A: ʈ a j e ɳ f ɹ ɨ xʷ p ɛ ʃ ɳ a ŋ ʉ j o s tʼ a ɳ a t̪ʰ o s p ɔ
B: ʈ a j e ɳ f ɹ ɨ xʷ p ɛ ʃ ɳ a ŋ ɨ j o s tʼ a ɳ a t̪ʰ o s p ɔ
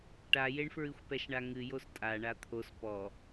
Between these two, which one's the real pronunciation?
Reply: B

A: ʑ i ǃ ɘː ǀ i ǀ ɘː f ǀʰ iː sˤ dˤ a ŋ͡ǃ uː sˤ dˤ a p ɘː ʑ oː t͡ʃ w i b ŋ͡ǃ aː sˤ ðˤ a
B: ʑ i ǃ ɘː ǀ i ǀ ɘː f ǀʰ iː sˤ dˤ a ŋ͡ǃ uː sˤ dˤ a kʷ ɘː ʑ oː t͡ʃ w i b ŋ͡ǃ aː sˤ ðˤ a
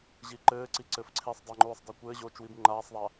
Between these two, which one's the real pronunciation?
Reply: B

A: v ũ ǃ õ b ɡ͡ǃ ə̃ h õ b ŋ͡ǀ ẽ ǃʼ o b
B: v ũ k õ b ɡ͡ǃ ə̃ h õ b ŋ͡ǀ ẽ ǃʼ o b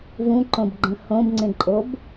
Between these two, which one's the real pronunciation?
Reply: A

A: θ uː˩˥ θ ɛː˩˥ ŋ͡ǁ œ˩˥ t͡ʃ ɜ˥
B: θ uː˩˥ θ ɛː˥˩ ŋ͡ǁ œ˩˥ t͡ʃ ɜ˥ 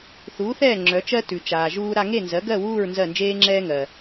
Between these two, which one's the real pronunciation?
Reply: B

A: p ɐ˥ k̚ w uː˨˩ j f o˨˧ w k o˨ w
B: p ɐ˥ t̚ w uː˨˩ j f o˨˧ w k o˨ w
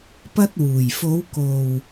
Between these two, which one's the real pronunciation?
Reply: B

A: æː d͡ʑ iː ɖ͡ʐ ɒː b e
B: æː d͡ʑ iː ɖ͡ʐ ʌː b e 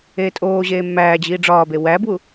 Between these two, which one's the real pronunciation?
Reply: A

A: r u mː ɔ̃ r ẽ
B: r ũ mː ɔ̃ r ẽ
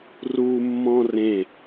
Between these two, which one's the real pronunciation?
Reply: A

